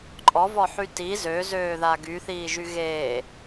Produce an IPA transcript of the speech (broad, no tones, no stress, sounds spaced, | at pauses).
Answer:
ǃʼ ɔ v ɔ ħ y t i z ø z øː ð a ɡ y θ iː ʒ y ɣ eː